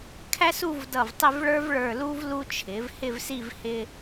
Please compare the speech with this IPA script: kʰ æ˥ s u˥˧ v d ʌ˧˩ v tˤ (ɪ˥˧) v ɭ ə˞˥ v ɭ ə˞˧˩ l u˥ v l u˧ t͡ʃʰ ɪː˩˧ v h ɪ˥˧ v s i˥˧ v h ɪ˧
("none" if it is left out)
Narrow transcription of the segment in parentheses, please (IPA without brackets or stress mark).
ɪ˥˧